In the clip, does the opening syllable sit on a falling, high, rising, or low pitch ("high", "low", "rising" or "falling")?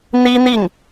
high